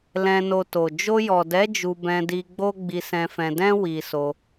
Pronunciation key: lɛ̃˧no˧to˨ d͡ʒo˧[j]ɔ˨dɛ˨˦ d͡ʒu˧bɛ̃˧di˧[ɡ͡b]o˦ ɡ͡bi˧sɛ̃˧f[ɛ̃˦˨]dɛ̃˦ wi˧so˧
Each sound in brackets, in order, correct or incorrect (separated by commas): correct, correct, incorrect